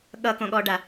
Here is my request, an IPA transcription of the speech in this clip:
ɠʌkõɠɔɖa

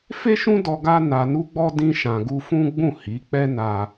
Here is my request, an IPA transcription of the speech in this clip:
fe˦ʃũ˦dɔ˧ ɡa˦na˧nu˦ ɡ͡bɔ˦ dĩ˦ʃã˧ɡu˦ fũ˦ɡ͡bũ˦˨hi˨˦k͡pɛ˦ na˦

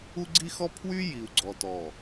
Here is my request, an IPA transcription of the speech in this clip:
u˦ɡ͡ǀi˦xɔ˦pʰwy˦ ji˨u̯ɡ͡ǀɔ˨tɔ˨

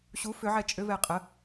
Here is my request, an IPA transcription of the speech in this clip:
ɕu fʏʕɛ t͡ʃʼʏvɛ qʼə

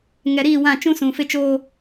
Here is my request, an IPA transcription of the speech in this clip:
ŋɛ˨ɾiː˦˨wã˦˨ t͡ʃũ˦sũ˨fɪ˦t͡ʃoː˦

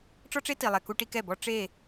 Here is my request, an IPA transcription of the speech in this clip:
ʈ͡ʂɔ˦ʈ͡ʂe˦ti˨lˠɛ˨ ku˦ʈi˦kɛ˦˨bɔ˦ ʈ͡ʂe˦˨

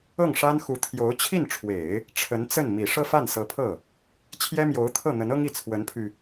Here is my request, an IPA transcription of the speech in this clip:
ɤ˥˩ŋʂa˥nxu˧˥ t̪ʰjo˧˥ʊ̯ t͡ɕʰi˥˩nʈ͡ʂʰwe˨˩˦ɪ̯ | ʈ͡ʂʰə˧˥nt͡sə˥˩n mi˨˩ ʂɤ˥˧fa˥˩nsɤ˧˥pʰɤ˥˩ | t͡ɕʰjɛ˥mjo˧˥ʊ̯t̪ʰɤ˥˩ n̪ə˧˥nɤ˥ŋi˥˩ t͡sʰwə˧˥npʰy˧

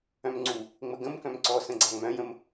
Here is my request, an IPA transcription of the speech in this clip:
œ̃mŋ͡ǀu | ŋ͡məɡə̃mkœ̃m ǀɔsə̃ɡ͡ǀa ŋ͡mœ̃jə̃m

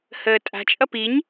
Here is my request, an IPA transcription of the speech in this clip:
həːtʼa̤t͡ʃʼʌ piɲ

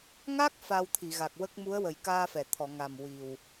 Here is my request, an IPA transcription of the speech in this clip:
ŋa˦˥k̚ fa˧wt̪ʰi˨˩˨ɣa˨˩k̚ wə˦˥k̚ mu˧˥ə̯wə˨˩jkaː˧fɛ˨˩˨ t̪ʰɔ˨˩˨ŋa˨˩m wi˨˩w

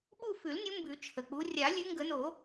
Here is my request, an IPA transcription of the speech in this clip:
ɓu˦˨fʉ˨˩˦lnʲu˨˦ mbʉ˨˩˦t͡ʃʰə˩k͡pu˨˦ rʲa˨˩˦lʲʉ˨˦ ŋɡə˨˩˦no˨˩˦

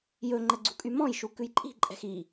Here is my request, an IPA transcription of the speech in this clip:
jɵŋ͡ǃɛ ɡ͡ǀṳkʼymɔ̃jʃu kʉjǃʼi̤ǃʼɛ̤x i

